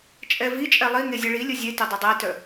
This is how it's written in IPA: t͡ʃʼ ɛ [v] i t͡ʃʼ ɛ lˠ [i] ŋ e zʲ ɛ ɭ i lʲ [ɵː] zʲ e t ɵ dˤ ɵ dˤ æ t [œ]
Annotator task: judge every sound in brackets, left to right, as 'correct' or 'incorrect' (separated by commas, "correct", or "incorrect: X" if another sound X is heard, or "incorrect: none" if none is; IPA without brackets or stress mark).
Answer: correct, correct, incorrect: ɵ, correct